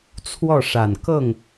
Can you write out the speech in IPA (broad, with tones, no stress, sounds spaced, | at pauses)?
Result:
t͡sʰ w ɔ˥˩ ʂ a˨˩ n k ɤ˥˩ ŋ